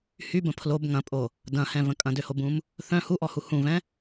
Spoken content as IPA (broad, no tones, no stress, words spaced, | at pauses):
hybə̃ pʰlob ŋɐ̃pʼo | dɐ̃hɛ̃və̃ kʼɐ̃døhobũm | θœ̃ huʔɔhu hũvɛ̃